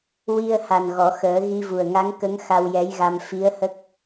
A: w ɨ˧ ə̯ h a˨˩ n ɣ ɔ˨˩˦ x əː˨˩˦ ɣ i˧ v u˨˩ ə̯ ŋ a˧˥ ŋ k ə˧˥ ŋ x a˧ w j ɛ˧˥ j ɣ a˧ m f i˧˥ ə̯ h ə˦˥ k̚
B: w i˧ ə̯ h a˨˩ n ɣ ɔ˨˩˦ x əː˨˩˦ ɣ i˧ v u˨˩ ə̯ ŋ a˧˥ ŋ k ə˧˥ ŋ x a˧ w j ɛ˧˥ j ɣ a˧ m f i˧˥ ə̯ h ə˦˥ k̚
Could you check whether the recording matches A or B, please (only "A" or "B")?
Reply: B